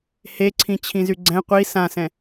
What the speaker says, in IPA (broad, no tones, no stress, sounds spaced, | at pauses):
h e ǀʰ ĩ t͡ɕʰ ĩ z y ɡ͡ǀ ɛ̃ qʷ i s ã s ɛ̃